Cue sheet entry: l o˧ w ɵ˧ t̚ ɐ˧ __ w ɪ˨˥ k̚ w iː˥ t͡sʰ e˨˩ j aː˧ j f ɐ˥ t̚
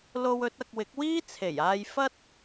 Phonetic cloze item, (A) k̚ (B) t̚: A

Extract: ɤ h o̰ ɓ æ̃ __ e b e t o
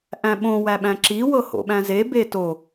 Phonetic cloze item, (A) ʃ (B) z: B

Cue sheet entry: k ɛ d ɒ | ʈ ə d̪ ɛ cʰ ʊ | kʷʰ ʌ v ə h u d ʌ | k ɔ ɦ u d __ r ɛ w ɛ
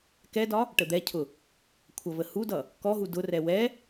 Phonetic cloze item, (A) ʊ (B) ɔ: A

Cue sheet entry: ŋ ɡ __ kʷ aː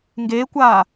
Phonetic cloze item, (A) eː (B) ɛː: A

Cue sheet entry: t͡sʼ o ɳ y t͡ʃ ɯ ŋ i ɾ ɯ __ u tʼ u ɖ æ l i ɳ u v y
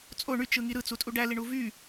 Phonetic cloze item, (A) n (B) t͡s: B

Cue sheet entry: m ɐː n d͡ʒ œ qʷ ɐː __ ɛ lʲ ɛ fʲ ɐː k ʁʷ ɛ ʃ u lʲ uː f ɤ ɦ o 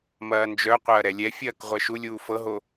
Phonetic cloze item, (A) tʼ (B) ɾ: B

